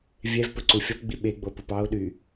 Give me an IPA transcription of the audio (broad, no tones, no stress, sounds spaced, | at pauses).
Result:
vʲ ɛ v p ɵ ǀ u fʲ ɔ p ɡ͡b i ɓ e ɡ͡b o p u p ɑ o̯ ɗ y